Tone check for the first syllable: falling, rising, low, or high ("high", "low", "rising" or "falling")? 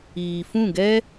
low